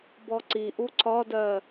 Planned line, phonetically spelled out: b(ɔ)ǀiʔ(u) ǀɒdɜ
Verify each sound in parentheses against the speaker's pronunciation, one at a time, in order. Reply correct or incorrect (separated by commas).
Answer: correct, correct